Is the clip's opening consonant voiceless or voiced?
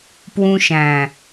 voiceless